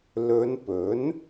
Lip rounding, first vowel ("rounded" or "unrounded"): rounded